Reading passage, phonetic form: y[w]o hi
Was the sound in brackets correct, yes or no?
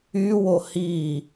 yes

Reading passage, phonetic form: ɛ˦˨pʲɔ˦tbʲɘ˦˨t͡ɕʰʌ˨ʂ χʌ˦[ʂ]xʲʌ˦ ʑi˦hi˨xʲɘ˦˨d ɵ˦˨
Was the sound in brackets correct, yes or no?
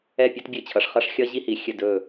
yes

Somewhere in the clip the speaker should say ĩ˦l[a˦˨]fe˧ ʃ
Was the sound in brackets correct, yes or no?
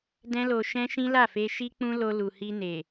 yes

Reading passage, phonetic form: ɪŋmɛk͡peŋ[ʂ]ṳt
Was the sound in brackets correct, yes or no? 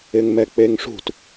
yes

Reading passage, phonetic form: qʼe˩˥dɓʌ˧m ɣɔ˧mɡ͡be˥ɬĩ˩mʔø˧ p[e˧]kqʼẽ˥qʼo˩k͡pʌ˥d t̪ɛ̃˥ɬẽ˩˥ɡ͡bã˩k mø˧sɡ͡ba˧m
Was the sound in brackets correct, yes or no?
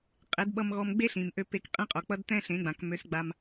yes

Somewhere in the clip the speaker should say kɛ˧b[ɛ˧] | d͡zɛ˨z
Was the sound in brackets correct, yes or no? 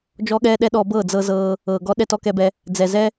yes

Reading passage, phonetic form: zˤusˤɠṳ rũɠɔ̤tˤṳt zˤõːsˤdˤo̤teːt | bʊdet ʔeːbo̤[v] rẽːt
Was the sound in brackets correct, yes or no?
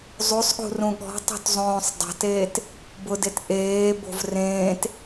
yes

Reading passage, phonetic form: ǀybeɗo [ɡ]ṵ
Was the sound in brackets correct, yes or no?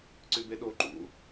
no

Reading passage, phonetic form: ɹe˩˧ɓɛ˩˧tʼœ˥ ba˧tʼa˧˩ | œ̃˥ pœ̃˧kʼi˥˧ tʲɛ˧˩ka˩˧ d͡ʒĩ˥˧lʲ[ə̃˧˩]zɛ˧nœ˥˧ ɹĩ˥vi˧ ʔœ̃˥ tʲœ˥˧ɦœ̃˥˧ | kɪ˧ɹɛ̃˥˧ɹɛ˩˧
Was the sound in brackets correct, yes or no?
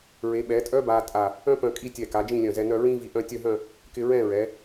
no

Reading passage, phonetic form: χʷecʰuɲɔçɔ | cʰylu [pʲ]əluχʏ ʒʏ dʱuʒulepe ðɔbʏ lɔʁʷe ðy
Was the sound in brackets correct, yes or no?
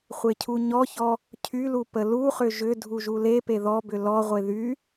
no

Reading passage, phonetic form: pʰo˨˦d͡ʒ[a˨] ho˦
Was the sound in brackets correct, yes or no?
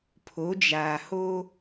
no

